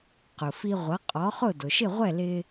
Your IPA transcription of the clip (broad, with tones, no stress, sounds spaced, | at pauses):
q ʊ˩ f i˧ ʁʷ ʌ˩˥ qʼ ɔ˩˥ χ ʊ˥˩ d ʊ˩ ʃ ɪ˥˩ ʁʷ ɛ˥˩ l ɪ˧